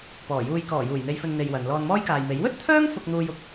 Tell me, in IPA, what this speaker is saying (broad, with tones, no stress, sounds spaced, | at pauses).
p ɔː˨˩ j uː˧ j k ɔː˨˩ j uː˨˩ j n̪ e˨ j f ɵ˨ n n̪ e˧ j w ɐ˨˧ n l ɔː˧ n m ɔː˥ j k aː˨ j m e˨˥ j w ɵ˥ t̚ t̪ʰ œː˥ ŋ f ʊ˧ k̚ n̪ uː˧ j ʊ˨˥ k̚